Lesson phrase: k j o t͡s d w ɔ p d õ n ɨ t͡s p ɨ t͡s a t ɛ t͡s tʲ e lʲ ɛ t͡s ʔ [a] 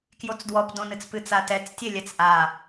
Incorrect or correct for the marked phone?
correct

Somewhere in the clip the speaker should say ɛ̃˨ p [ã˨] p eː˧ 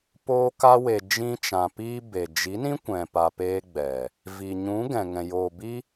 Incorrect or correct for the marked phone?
incorrect: a˨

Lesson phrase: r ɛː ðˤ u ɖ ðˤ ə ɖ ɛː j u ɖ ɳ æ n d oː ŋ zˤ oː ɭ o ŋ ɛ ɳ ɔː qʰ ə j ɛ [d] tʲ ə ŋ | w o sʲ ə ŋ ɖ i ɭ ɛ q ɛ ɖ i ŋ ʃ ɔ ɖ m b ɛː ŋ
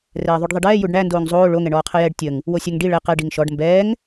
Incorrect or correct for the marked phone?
incorrect: ɖ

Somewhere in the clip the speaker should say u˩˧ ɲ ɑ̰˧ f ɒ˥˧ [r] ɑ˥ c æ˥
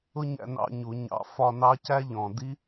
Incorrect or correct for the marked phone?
incorrect: n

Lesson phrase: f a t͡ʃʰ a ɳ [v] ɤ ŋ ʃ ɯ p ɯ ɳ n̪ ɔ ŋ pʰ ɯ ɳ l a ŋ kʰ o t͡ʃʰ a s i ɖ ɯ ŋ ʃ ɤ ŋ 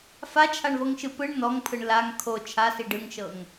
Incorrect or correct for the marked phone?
correct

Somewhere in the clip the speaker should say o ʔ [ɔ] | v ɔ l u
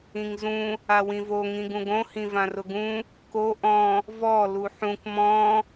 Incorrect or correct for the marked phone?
incorrect: ɔ̃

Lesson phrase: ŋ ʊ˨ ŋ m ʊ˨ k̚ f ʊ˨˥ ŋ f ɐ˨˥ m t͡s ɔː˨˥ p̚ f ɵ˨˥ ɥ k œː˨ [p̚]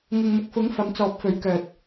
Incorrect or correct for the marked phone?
incorrect: t̚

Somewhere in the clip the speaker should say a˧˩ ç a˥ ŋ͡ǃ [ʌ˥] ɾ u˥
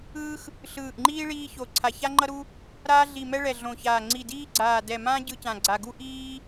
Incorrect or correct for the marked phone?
correct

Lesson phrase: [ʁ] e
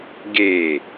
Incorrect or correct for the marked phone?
incorrect: ɡ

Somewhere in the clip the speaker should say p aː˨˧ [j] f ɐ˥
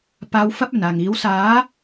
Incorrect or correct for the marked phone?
incorrect: w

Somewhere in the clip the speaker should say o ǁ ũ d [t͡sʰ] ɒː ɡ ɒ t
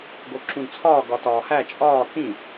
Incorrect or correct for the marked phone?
correct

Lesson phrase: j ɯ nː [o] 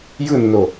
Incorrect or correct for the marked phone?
correct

